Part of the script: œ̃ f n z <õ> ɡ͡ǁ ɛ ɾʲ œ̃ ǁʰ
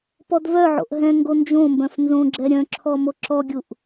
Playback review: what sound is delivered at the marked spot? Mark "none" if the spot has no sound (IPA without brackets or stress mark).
õ